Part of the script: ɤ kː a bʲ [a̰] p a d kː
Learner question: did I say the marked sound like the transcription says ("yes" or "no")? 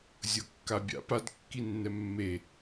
yes